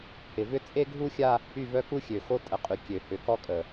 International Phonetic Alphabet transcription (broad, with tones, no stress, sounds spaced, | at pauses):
h ɪ˨ v ʏ˦ t͡sʼ e˦ ɡʱ u˦ xʲ a˦ | y˦˨ v œ˦ k u˦ xʲ ø˨ x o˦ tʼ ə˨ qʼ y˨ kʲ ø˨ h ʏ˨˦ k ɔ˦ kʼ ə˨